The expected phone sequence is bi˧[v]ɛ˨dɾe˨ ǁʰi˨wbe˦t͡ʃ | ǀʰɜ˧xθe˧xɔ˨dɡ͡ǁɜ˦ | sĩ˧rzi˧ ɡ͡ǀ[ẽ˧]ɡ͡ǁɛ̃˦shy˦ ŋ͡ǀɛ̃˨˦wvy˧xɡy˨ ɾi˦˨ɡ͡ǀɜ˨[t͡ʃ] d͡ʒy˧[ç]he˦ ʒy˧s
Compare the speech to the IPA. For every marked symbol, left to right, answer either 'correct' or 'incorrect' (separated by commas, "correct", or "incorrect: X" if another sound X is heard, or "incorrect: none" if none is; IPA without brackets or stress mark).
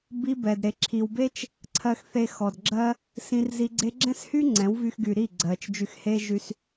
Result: incorrect: b, incorrect: e˧, correct, incorrect: x